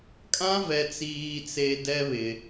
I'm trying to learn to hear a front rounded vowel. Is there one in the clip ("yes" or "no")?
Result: no